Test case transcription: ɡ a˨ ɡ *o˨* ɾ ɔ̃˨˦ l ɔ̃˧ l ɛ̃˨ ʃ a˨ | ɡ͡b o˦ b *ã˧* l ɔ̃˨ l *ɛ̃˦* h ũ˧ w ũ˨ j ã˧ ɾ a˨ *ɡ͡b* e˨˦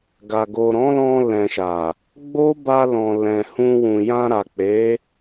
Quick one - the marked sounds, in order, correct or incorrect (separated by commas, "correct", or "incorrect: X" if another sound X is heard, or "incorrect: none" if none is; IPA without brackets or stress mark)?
correct, incorrect: a˧, incorrect: ɛ̃˨, incorrect: k͡p